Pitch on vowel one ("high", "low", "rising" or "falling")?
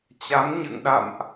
rising